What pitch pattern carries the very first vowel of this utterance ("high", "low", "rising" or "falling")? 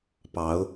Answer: rising